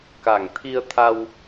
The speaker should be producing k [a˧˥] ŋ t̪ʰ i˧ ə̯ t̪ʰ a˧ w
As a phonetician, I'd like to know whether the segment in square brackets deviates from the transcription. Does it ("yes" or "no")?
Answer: yes